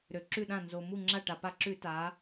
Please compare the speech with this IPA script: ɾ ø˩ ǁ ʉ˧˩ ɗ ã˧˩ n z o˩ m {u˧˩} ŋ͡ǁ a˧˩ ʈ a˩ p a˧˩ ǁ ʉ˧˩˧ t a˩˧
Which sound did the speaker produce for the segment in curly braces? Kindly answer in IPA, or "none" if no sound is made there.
u˧˩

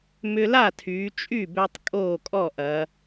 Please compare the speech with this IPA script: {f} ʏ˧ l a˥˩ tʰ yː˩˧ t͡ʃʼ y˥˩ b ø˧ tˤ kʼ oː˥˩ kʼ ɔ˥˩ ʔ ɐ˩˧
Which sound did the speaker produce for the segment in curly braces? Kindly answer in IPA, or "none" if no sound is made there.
m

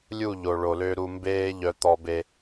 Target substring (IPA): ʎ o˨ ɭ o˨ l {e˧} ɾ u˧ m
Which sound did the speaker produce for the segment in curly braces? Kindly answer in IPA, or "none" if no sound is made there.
ø˧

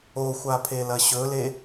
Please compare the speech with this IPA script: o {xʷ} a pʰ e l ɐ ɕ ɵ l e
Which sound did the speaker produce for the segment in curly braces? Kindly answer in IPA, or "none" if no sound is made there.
xʷ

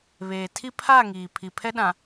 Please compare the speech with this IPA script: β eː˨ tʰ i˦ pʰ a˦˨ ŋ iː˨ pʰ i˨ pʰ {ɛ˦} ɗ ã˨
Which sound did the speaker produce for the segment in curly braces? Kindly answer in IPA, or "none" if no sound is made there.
ɛ˦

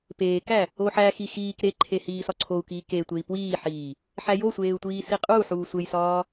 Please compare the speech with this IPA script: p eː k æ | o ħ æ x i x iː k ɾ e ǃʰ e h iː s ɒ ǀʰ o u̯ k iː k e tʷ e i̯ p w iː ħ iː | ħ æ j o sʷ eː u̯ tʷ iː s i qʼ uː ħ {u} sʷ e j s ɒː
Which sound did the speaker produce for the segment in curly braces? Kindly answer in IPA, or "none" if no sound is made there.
uː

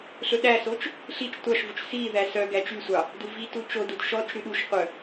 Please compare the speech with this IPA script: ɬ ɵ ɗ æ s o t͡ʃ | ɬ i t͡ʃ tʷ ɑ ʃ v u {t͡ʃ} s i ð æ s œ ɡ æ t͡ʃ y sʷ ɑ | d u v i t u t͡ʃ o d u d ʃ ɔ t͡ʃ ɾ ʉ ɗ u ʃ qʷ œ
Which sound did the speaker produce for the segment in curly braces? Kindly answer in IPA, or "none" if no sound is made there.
t͡ʃ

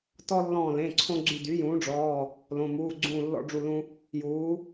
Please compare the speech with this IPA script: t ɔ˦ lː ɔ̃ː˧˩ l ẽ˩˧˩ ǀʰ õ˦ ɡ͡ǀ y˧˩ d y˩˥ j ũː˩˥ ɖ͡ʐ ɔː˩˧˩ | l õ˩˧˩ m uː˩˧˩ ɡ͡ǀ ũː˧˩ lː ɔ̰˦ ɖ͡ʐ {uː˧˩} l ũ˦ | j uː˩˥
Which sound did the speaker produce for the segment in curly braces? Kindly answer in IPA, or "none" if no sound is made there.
u˧˩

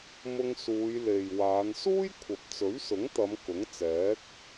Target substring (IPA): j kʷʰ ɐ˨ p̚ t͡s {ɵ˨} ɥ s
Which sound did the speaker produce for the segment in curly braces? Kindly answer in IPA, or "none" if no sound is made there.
ɵ˨˥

